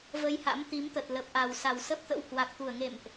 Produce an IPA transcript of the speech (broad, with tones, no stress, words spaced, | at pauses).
və˧jha̰˧˥m t̪i˨˦mt̪ə˨˩t̚ lə˨˩p̚ʔa˨˩wsa˨˩w sə˦˥p̚t̪ə̰˧˥whwa˨˩k̚t̪u˧˩ə̯ ŋḛ˧˨mʔ